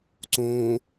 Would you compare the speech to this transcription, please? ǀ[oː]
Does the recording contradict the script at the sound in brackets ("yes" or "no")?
yes